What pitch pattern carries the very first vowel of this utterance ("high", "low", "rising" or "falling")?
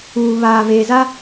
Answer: low